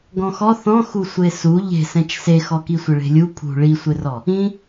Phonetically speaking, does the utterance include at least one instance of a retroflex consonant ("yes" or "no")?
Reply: yes